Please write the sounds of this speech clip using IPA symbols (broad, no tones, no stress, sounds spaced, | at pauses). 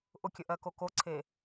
ʔ ʊ kʲ ə ʔ ɜ k o k o ǀʰ e